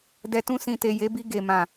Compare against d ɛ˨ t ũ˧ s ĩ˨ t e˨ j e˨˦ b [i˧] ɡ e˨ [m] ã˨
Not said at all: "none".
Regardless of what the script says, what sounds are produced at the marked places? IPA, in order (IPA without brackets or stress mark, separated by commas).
i˧, m